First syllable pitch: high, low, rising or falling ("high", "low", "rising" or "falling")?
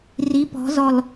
rising